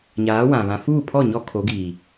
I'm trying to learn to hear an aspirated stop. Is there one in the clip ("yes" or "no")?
yes